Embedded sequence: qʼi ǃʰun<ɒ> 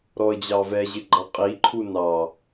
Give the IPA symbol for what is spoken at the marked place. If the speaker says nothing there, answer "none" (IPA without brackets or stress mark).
ɑ